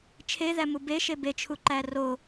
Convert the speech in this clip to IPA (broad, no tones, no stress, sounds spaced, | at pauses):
t͡ʃʰ e ð æ m u b e ʃ e b e t͡ʃʰ u ǃ æ r o